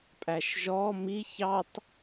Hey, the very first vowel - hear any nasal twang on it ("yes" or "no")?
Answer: no